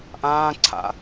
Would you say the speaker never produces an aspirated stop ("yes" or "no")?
no